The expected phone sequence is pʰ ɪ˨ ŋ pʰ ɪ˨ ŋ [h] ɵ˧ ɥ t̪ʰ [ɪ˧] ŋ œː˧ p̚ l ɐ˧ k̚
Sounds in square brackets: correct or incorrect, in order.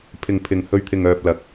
correct, incorrect: ɪ˨

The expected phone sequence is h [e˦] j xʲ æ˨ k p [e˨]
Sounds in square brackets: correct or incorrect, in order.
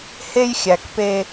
correct, incorrect: e˦

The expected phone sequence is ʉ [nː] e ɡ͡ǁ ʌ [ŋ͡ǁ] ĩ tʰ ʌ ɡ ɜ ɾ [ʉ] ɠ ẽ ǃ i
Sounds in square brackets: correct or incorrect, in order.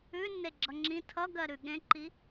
correct, correct, correct

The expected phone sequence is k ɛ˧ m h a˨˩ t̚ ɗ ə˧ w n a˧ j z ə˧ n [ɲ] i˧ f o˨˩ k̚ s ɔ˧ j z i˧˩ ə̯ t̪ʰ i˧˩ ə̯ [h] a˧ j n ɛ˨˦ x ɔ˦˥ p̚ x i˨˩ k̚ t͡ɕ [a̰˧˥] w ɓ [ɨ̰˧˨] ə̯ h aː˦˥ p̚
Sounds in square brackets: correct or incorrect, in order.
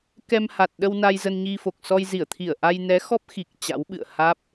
correct, incorrect: ʔ, correct, correct

